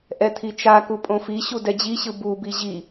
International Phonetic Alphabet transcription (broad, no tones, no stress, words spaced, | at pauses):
ʔɛt̪ʰit͡ʃaku pʼõfiɕu dɛd͡ʑiɕɯ bubi ʑi